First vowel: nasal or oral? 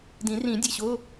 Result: nasal